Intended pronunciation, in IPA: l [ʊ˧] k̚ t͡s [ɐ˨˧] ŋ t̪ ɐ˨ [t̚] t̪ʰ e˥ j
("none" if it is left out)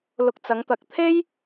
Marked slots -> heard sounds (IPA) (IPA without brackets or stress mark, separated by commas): ʊ˧, ɐ˨˧, k̚